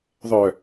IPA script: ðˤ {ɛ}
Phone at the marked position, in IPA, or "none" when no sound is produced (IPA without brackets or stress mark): œ